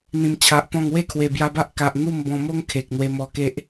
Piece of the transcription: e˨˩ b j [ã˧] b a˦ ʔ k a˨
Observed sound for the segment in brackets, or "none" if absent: a˧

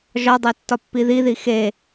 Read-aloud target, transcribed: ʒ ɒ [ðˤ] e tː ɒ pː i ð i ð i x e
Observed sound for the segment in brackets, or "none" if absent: dˤ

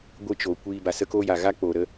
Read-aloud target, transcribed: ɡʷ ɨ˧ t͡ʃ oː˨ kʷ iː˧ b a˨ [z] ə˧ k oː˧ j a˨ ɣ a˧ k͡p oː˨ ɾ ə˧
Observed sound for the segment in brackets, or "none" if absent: s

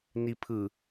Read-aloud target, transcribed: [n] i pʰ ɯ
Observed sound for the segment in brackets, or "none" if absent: n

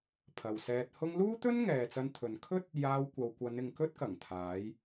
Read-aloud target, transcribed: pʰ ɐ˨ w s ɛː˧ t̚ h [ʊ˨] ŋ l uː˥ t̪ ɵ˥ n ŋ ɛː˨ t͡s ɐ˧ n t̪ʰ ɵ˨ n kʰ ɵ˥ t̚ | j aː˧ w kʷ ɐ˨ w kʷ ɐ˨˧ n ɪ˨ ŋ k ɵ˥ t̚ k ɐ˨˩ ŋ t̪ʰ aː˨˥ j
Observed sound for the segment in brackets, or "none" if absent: ʊ˥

